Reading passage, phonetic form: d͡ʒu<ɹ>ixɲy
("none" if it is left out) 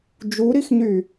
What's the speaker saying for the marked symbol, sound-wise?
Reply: ɾ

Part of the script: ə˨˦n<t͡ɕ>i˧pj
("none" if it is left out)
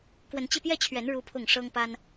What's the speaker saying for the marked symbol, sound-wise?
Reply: t͡ɕ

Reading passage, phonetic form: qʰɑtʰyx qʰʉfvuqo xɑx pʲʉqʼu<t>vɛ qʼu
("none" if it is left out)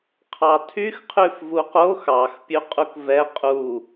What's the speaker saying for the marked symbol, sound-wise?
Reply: k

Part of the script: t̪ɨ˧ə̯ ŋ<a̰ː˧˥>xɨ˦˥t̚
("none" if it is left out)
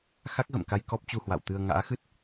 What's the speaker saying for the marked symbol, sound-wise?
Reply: a̰ː˧˥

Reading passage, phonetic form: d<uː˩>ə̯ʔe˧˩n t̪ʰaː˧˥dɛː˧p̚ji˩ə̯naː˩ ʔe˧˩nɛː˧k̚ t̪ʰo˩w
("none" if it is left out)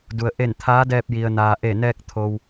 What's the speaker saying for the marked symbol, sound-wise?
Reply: u˩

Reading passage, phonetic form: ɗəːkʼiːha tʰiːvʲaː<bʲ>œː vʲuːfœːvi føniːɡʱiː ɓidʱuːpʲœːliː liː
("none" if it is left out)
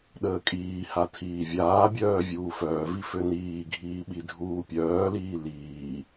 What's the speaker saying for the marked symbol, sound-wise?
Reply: bʲ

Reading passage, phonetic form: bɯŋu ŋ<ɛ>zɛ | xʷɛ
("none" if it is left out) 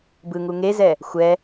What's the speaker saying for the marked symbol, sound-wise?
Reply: e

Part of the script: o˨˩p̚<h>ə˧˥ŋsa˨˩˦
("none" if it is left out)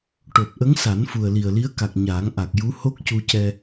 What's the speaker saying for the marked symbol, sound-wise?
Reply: ʔ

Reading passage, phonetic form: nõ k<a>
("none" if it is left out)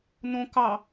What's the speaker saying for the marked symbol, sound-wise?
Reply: ɑ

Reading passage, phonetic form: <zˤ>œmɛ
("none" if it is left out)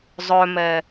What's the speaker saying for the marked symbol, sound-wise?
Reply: zˤ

